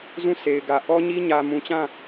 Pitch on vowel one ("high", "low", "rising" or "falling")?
falling